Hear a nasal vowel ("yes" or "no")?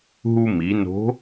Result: no